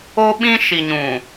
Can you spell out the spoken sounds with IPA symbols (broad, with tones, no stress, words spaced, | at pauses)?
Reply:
o˦ɓĩ˦ ʃi˨ɲũ˨